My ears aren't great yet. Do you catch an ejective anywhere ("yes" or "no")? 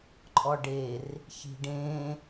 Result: yes